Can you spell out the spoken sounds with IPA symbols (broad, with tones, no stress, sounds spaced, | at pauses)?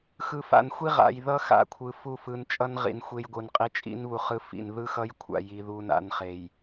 x ɯ˨ f a̰˨ n xʷ i˦ ʁ a̰˨ j ð ʌ˦ x a̰˨ kʷʰ ɯ˨ f u˦˨ f ɯ˨ n t͡ʃʼ ʌ˦ n ʁ ḭ˨ n xʷ e˦ j ɡʷ ɯ˨ n qʼ i˦ t͡ʃʼ ḭ˦ n β u˨ χ ɯ˦ f ḭ˨ n ð ɯ˦ x ʌ˦ j kʷʰ a̰˨ j i˦ ð u˦ n a̰˦ n χ e˨ j